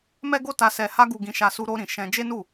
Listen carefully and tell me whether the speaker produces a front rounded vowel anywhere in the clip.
no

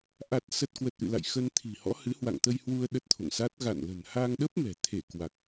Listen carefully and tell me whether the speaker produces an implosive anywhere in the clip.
yes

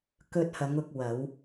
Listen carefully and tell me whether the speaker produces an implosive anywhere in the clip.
no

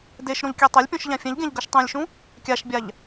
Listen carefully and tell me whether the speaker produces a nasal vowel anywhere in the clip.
yes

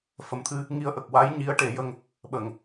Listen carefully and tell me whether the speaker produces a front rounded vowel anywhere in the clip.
no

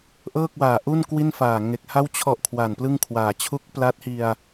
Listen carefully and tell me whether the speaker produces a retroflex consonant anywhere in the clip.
no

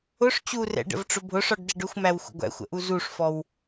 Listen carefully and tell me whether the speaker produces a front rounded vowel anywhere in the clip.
no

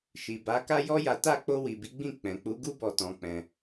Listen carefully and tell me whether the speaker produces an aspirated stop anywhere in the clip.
no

